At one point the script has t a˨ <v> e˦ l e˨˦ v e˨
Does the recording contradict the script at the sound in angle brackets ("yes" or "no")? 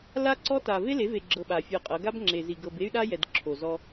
no